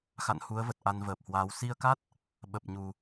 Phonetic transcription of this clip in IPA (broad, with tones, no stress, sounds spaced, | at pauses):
x a̰˧˨ n h u˨˦ ə̯ v ə˨˩ t̚ ʔ a˧ n v əː˨˩ p̚ h w aː˨˦ w s i˧ ə̯ k a˦˥ t̚ | ɓ ə˨˩ p̚ ɲ u˨˩